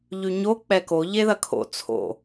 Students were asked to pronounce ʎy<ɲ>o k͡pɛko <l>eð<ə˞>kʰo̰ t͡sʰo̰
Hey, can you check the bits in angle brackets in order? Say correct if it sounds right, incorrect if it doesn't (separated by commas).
correct, incorrect, incorrect